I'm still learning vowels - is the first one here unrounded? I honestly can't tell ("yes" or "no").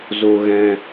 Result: no